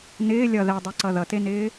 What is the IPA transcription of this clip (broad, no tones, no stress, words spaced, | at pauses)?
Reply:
nɪː lʲʌ ðɛdˤeǀʌ ðʌtenɪː